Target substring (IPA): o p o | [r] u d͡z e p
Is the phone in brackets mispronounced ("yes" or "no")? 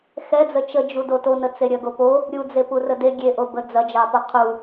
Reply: yes